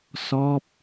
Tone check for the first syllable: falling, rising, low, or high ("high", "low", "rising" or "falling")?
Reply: falling